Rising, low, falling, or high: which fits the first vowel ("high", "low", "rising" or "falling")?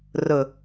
low